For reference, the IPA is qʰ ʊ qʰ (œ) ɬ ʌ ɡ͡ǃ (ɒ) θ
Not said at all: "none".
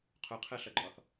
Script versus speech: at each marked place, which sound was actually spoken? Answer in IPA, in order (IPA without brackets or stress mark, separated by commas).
ɛ, ɒ